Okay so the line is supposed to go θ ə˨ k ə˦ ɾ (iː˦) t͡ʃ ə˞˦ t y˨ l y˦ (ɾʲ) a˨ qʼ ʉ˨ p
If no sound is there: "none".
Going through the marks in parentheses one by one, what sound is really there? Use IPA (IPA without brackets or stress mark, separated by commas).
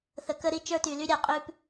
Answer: i˦, ɾʲ